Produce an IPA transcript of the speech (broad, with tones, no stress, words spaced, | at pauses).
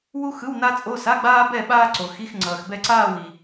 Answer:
wu˥ xɯ˧˥˧wna˥t͡sʼo˧˥˧ sa˧˥˧ɡ͡baː˥bɛ˥˧ ɓaː˥ǀo˨xi˧˥˧x ŋ͡ǀʌː˨xbɛ˥˧ǀaː˥˧w i˨